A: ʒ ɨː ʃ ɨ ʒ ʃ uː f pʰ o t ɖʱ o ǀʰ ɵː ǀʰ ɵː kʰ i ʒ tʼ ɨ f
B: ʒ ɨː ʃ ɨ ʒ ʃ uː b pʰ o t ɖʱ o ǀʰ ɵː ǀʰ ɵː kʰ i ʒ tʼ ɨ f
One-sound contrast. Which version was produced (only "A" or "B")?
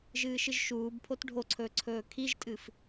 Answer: B